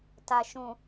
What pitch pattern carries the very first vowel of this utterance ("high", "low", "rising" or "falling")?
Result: low